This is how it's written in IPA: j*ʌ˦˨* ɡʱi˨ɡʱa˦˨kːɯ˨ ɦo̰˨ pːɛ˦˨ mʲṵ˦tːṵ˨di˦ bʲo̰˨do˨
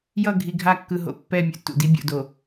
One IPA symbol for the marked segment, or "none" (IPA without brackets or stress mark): ʌ˦˨